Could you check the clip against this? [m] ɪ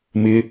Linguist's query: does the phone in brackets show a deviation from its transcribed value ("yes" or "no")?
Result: no